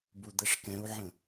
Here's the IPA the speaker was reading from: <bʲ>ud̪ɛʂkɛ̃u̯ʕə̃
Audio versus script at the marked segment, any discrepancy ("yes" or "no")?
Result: yes